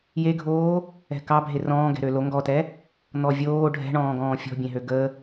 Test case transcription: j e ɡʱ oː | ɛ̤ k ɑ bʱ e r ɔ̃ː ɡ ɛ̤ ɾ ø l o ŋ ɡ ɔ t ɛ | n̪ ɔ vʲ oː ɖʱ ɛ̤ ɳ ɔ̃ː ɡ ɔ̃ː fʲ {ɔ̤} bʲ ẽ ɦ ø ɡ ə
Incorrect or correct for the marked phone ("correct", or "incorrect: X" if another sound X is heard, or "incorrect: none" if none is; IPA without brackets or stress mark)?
correct